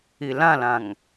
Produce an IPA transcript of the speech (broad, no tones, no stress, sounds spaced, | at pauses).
i l ã l ã ŋ